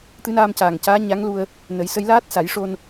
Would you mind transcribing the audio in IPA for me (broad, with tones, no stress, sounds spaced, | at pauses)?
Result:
t̪ ɨ˧˥ n aː˧ m c aː˨˩ ŋ c aː˧˥ ɲ a˧˥ ŋ l u˧ ə̯ | n ə˨˩˦ j s ə˧˥ j l aː˦˥ t̚ s a˨˩˦ j ʂ o˧ n